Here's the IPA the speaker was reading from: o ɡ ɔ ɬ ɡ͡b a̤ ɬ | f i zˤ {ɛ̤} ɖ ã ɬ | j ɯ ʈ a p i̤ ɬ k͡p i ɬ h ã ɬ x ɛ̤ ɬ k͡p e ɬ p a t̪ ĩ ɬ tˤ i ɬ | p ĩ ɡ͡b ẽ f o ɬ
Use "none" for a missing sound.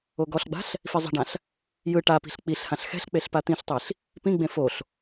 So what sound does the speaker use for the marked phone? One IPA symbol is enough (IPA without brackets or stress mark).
ɛ̤